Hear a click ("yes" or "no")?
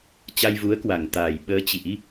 no